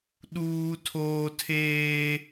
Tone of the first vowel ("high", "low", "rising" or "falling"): high